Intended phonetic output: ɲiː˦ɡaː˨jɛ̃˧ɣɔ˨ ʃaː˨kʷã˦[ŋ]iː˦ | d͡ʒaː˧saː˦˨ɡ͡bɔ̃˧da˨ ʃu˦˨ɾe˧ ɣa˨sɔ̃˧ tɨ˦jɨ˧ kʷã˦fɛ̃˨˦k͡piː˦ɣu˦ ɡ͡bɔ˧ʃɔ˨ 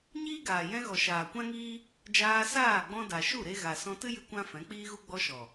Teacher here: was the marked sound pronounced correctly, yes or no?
yes